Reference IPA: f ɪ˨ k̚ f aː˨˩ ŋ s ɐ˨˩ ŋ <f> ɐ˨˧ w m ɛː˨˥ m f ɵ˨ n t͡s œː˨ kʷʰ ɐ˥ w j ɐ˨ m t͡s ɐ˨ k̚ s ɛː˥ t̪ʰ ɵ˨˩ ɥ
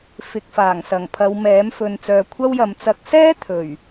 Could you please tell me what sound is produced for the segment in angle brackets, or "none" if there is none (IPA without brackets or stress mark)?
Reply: pʰ